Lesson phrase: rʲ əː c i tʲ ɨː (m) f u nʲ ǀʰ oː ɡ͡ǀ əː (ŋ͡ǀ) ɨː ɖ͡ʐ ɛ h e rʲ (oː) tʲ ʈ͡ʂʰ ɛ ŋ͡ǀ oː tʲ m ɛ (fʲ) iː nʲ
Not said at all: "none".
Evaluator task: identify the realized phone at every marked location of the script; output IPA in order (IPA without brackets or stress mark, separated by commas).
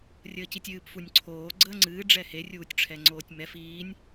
p, ŋ͡ǀ, uː, f